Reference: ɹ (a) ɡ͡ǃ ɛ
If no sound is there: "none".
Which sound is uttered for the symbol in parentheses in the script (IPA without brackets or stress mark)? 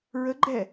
ə